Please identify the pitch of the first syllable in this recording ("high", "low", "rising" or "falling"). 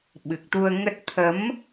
low